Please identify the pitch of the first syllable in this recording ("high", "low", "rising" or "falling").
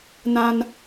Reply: high